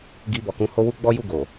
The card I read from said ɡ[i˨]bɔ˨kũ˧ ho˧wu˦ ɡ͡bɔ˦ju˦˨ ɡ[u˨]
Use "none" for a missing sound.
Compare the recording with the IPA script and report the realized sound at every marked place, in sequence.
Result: i˧, o˨

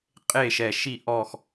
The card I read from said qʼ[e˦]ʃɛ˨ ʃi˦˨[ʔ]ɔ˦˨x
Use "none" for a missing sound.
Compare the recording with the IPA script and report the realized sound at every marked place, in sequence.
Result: e˦˨, ʔ

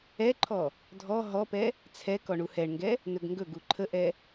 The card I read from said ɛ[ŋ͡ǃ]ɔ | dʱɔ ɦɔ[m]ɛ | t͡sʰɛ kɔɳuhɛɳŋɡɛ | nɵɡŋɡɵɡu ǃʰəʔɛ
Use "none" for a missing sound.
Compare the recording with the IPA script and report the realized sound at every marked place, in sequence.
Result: ǃʰ, p

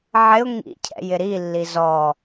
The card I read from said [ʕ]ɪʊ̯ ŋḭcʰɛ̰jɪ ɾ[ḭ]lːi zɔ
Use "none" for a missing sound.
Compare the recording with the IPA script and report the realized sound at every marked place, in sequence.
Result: ʕ, i

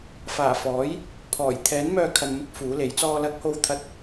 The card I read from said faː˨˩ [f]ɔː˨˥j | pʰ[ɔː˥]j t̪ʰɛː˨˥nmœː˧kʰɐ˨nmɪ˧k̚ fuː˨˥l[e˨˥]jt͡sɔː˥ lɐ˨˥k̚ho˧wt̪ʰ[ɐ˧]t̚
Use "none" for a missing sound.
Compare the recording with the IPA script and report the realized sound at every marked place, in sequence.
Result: f, ɔː˨˩, e˨˥, ɐ˧

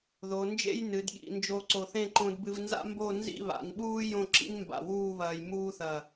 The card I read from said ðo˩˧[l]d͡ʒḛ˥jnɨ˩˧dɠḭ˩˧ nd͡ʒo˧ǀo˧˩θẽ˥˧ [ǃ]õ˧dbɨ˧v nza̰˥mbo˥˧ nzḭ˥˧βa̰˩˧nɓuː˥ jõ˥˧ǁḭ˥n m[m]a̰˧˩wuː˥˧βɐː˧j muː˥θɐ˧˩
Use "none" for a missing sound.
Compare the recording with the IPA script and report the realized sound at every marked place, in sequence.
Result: n, ǃ, b

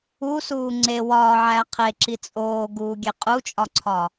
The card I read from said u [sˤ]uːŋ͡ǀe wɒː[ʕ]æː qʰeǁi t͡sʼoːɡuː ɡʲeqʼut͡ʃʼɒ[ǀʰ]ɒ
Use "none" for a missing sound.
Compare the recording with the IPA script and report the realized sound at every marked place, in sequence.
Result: s, ʕ, ǀʰ

